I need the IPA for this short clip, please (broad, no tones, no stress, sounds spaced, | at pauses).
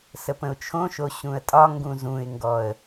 s ə p ə̃ ʊ̯ t͡ʃʰ õ ʃ o ɕ ũ ə̯ tʼ ɒ ŋ ɡ ũ z ũ ɪ̯ ŋ ɡ ɔ ə̯